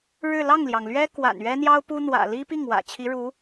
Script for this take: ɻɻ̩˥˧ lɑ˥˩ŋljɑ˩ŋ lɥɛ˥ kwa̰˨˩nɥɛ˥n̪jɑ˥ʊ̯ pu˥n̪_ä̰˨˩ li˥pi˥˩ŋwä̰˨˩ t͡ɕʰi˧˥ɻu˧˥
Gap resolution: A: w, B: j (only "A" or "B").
A